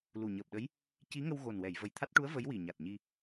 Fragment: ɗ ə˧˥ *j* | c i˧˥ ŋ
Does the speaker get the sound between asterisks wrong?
no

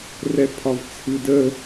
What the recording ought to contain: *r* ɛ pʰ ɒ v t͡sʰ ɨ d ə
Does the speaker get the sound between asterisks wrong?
no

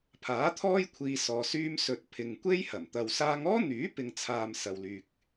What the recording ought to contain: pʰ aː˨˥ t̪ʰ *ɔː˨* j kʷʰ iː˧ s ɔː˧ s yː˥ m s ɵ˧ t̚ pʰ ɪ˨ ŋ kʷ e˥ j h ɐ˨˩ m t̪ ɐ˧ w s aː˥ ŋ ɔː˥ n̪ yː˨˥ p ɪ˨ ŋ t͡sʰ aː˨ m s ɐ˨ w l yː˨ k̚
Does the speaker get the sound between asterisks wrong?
yes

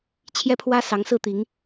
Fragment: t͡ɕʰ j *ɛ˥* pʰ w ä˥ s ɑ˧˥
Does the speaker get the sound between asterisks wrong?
no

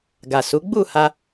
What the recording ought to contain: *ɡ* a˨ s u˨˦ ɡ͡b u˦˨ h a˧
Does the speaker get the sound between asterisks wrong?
no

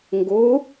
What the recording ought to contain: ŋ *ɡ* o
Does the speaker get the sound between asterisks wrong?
no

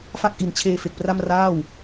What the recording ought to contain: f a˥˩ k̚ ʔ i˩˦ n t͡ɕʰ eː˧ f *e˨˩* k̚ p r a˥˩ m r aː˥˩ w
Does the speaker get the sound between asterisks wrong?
no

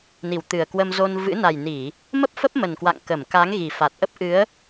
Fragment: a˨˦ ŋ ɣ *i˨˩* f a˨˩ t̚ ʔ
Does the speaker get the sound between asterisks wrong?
no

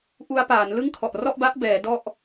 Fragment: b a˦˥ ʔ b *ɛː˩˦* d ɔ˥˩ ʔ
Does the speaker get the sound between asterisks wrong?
no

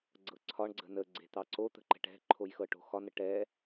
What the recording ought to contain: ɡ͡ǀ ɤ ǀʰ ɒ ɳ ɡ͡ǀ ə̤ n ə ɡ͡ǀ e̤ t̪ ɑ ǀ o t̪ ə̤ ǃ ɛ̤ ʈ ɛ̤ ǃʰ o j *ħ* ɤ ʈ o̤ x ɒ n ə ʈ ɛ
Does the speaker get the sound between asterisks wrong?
yes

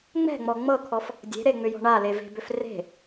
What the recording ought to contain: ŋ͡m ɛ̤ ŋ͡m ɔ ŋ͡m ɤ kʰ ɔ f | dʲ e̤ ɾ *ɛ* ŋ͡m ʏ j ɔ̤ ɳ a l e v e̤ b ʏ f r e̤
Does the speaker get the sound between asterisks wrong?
yes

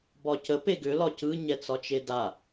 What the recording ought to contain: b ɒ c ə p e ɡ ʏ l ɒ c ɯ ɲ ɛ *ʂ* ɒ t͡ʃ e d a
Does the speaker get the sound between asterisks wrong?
yes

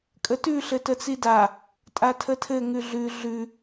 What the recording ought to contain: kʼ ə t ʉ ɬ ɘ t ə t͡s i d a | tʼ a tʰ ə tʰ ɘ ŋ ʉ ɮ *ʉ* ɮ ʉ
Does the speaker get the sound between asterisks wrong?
no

